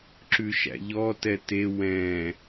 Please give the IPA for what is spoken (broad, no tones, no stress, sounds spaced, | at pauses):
ǁ ʉ ʃ æ̰ ʎ ɔ t ɛ t e w ɛ̃